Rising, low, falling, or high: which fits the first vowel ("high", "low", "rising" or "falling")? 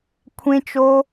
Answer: high